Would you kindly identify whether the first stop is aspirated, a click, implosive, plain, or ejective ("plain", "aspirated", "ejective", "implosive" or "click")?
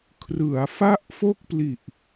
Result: aspirated